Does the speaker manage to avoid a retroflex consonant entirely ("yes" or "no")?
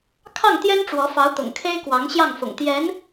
no